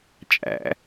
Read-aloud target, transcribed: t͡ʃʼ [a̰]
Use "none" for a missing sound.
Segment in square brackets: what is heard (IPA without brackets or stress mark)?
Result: æ̰